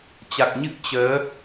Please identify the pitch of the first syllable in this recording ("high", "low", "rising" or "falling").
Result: low